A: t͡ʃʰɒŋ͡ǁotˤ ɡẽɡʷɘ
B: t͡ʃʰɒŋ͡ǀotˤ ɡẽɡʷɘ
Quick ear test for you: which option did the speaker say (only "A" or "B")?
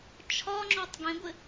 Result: A